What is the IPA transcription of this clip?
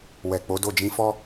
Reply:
w ɛ˨ k͡p o˨˦ d o˦˨ d͡ʒ ĩ˧ f ɔ˦

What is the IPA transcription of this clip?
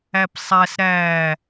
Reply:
æ p sˤ æ s ɾ æ

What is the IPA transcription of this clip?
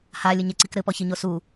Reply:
h a lʲ ɘ ɲ e ǀ i k ɾ ɘ p ɔ ç i ɲ o s u

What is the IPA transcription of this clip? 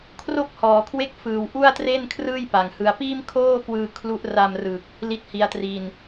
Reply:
kʰ r o˥˩ k̚ h ɔː˩˦ kʰ w e˥˩ k̚ f ɯː˨˩ w ʔ u˥˩ a̯ t r e˥˩ n kʰ r ɯː˥˩ j p a˨˩ ŋ h ɯ˧ a̯ p iː˥˩ m kʰ oː˥˩ k w ɯː˧ kʰ l u˦˥ ʔ r a˧ m r ɯ˨˩ k̚ | l i˥˩ t̚ h i˦˥ a̯ t r i˧ n

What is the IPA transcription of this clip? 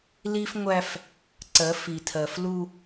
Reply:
l i˦ f ŋʷ æ˦ f | ǀ ɜ˨˦ f i˨ tʰ ɜ˨ f l u˦

